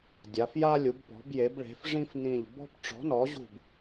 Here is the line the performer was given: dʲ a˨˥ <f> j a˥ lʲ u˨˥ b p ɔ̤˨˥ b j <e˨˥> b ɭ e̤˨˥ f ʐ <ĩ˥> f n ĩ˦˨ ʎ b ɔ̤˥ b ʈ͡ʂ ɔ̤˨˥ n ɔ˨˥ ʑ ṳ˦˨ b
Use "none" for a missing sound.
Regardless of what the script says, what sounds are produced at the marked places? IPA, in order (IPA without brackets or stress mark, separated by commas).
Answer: f, e˨˥, ĩ˥